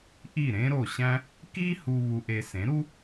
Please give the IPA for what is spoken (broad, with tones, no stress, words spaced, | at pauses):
ʔi˥˩ɾẽ˥ɾo˥˩ɕæ̃˥ | ki˥ hu˧ βu˧ʔe˧ sẽ˩˥ɾu˥